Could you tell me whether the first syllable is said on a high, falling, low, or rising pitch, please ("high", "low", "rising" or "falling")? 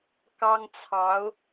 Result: high